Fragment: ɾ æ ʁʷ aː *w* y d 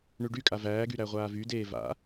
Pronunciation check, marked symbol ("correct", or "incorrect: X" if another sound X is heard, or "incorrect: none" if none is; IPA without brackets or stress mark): incorrect: v